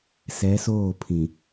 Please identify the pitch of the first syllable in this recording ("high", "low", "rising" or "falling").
rising